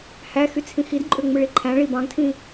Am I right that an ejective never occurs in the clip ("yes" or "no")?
no